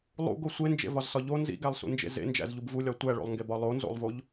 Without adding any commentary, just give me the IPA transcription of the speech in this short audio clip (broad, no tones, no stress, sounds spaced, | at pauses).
lˠ ṵ ɡ o sʷ e n d͡ʒ ḛ v ɒ z s ɒ ʎ o n z ḭ ɡ æ lˠ s ṵ n d͡ʒ ḛ z ḛ n d͡ʒ æ̰ z ʎ u b v u lʲ ɒ tʷ æ ɭ o̰ lˠ ŋ ɡ e b ɒ lˠ o n z o̰ lˠ v o ʎ